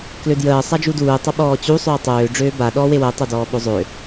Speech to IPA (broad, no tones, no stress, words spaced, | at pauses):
klødjəː sˤad͡ʒuduː tˤəɓɔːt͡ɕu sˤøːtˤøː ɖ͡ʐøːba ɗɔːwewəː tˤødɔːɓozˤø